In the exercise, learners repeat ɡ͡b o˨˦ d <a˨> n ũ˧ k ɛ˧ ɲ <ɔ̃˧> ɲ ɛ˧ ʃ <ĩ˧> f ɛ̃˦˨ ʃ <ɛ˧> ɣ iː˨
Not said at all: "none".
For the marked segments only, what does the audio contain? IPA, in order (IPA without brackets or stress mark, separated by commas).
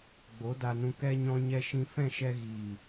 a˧, ɔ̃˧, ĩ˧, ɛ˧